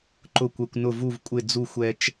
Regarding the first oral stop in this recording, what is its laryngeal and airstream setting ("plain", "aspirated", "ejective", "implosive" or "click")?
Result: click